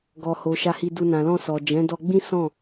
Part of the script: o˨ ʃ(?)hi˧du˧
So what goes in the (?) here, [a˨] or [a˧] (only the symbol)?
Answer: a˧